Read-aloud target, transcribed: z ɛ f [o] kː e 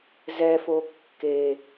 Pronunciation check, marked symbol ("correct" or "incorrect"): correct